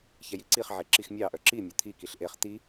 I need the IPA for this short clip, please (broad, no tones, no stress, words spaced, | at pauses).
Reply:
çɛjiǀiχʕe ǁixmʲɑʔœ ǁi mʲœt̪ʰikiɬ ʔeχ t̪i